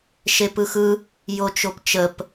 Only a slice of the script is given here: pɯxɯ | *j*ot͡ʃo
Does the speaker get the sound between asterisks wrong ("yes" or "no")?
no